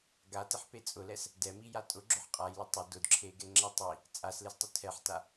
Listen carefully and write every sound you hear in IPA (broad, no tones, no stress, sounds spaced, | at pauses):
ɡ a t ɪ ħ p e t͡sʼ ʊ l ɛ s | d ɛ m i j a tʼ ʊ ɡ͡ǁ ʊ ħ qʼ a j l ʊ tˤ ɪ d ʊ d ǁʰ e ɡ ɛ ŋ͡ǁ ɛ tˤ i | t͡sʼ a s l e s tˤ ʊ tʰ ɛ ħ t a